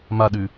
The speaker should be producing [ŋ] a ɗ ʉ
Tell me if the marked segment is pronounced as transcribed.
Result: no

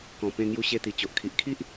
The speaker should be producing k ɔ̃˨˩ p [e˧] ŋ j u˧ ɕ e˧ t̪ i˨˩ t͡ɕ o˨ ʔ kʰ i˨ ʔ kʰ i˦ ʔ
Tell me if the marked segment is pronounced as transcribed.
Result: no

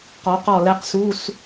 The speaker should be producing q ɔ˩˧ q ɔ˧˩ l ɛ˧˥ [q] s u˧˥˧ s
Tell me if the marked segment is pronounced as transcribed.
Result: yes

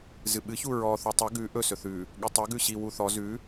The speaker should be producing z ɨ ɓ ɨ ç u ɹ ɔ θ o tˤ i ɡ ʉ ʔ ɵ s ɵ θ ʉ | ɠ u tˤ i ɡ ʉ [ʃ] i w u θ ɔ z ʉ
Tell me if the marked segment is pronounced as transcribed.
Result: no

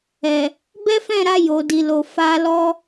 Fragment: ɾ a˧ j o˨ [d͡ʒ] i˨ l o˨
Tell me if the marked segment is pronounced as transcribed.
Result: no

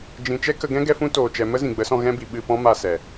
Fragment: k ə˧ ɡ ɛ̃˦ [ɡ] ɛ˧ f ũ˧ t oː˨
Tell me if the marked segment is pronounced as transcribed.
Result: yes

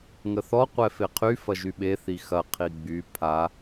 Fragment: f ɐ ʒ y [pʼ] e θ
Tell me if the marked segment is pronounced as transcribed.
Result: no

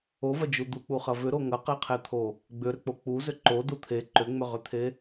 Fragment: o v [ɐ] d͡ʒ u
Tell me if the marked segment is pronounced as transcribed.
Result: yes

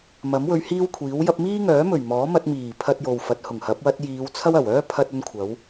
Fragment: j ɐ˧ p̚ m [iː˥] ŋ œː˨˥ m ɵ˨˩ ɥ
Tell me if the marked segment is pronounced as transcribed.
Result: yes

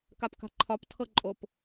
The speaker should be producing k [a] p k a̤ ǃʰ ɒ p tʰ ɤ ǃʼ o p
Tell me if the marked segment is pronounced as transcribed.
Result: yes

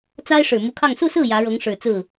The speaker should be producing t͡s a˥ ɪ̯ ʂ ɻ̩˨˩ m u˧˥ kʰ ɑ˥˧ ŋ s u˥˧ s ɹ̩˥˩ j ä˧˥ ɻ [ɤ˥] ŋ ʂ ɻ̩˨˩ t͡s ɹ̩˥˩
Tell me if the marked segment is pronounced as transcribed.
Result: no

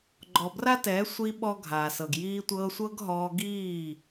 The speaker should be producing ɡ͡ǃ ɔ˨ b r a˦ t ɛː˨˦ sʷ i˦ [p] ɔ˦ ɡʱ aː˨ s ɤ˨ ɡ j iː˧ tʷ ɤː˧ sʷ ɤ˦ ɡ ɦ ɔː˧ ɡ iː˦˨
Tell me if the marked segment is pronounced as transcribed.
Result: no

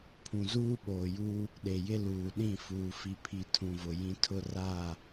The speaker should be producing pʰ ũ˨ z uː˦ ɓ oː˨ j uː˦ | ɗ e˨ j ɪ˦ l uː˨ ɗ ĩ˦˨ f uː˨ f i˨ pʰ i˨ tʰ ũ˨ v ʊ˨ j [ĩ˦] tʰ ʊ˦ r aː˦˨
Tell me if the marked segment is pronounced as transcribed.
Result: yes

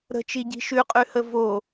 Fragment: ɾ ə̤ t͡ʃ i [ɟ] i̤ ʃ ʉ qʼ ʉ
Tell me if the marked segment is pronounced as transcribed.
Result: yes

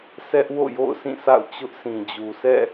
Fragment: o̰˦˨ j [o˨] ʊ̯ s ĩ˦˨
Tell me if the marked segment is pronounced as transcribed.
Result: no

